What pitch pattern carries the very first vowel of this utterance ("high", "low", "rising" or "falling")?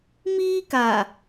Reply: high